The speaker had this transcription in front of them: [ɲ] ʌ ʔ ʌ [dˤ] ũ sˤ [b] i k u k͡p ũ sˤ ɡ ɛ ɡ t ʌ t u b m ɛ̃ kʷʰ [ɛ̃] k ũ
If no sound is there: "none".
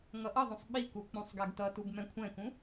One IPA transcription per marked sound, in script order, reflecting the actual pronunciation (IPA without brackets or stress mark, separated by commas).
ŋ, ðˤ, ɓ, ɛ̃